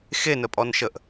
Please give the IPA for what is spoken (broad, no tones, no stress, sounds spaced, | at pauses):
x e n ə pʼ ɔ n ʃ ə ʔ